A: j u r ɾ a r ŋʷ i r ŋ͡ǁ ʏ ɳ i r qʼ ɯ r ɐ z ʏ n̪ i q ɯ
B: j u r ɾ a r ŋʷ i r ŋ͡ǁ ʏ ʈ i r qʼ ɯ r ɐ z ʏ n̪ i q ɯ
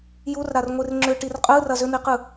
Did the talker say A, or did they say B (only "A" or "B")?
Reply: B